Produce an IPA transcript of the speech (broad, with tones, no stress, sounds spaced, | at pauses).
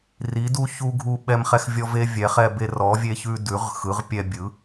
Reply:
r i˨˥ d u˦ ç u˦ ɡʱ u˦ ɓ ɛ˦ m χ ɛ˦ x vʲ ɔ˦ v e˦ vʲ ɛ˨˥ χ ɛ˦ b e˦ r ɔ˨˥ vʲ e˦ ç ʉ˦ d ʉ˨˥ ʁ x ɯ˨˥ ʁ pʲ ɛ˦ bʲ ɯ˨˥